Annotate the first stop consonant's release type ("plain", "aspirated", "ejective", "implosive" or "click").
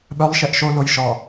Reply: implosive